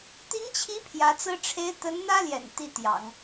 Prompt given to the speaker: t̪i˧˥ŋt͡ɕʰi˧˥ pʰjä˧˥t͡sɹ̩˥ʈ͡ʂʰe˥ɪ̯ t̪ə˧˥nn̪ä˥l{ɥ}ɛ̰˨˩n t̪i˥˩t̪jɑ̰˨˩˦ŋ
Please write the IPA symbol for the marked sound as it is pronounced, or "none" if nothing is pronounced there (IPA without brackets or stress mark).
j